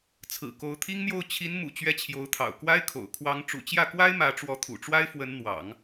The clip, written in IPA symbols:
t͡sʰɹ̩˨˩ ko˧˥ʊ̯t̪ʰi˥ŋn̪jo˥˩ʊ̯ t͡ɕʰi˧˥nmṵ˨˩ t͡ɕɥɛ˥t͡ɕʰjo˧˥ʊ̯t̪ʰɑ̰˨˩ʊ̯ kwa˥ɪ̯kʰo̰˨˩ʊ̯ kʰwɑ˧˥ŋ ʈ͡ʂṵ˨˩t͡ɕjä˥˩kwa˥ɪ̯ mä˧˥ʈ͡ʂwɔ˧˥t̪ʰṵ˨˩ʈ͡ʂwa˥ɪ̯ fwə˧˥nn̪wɑ̰˨˩˦ŋ

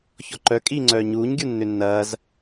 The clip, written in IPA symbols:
çɔǃœ kʼiːŋ͡ǀœːɲuːɲ ɡʲunːʏnːɐːz

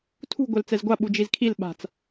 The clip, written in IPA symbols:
tʰṳ ɡʷɛlt͡sɛzɡʷa ɓud͡ʒizkʰil ɓa̤t͡s

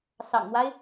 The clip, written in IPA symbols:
sɑ̰˨˩ŋn̪wa˦ɪ̯

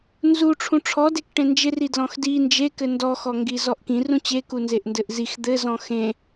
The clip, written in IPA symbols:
nzu ʈ͡ʂʰũʈ͡ʂʰɔdek ʈẽnd͡ʒɪ ridlɔ̃xdi nd͡ʒekɘ ndɔxɔ ŋɡizɔʔkĩ rũt͡ɕeku nzeʔndɘʔzix d̪ɘzɔ̃ xẽ

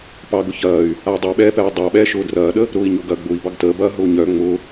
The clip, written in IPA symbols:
pɑɡʊ çɐːy̯ | ai̯dˤʊy̯ɓɛːpɛː dˤɑɓɛː ʃʊːdrɐːɗə | ɾʊːi̯ɲoɡɐ ɡ͡bʊi̯ bɑɡtəːbɐː ɦʊːɲœ ŋ͡mʊ

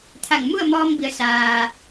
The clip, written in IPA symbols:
t̪ʰa˧˩ŋmu˥˨ə̯mɔː˧mbi˩˧ə̯ saː˩

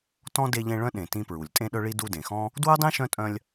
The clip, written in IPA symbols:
tɔ̃˥ de˦ʎẽ˦ɭœ̃˥ɗẽ˨ tĩ˦pɹu˩lʲ tʼẽ˥ɗœ˥ɭi˥ du˦dẽ˩xɔ̃˥ | dwœ˥dˤẽ˥ ʃœ̃˥tʼœ̃˦lʲ

